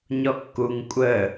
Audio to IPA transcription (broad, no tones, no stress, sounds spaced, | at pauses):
ɲ ɔ kː u ŋ kʷʼ ə